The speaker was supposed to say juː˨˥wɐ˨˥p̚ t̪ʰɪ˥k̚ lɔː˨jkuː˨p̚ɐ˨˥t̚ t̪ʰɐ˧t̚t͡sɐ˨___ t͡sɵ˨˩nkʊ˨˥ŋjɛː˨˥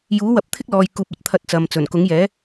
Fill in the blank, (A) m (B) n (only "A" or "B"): A